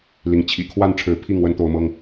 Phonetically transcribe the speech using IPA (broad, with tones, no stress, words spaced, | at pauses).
li˨˦ŋ t͡ɕʰḭ˨˩kʰwa˥˨n ʈ͡ʂʰɻ̩˨˦ pʰi˥˨ŋ wə˦nt̪o˨˦ʊ̯mɤ˦ŋ